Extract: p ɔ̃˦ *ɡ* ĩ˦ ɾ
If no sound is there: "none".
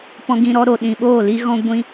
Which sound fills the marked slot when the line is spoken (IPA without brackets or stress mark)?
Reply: ɡ